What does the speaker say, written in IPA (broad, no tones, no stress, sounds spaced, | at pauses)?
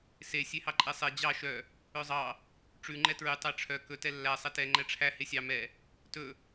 s e sʲ e h ɑ ǃʼ ɛ sˤ ɛ d͡ʑ ɑ ʃ œ | œ zˤ ɑ | ʈ͡ʂ ʉ ŋ͡ǃ ɛ t ɹ ʉ tˤ æ ʈ͡ʂʰ œ k ɵ t ɛ lː æ sˤ ɛ t ɛ ŋ͡ǃ ɛ ʈ͡ʂʰ æ h e sʲ ɑ m ɛ | t ɵ